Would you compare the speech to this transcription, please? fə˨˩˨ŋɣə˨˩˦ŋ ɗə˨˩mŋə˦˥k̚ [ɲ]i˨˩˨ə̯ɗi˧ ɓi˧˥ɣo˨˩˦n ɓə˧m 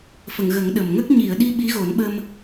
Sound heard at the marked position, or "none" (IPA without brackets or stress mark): ɲ